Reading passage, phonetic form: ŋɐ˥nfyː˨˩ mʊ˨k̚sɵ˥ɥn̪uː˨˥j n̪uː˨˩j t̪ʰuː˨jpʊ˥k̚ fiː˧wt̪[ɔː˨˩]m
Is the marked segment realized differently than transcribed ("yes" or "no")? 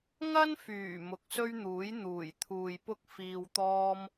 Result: yes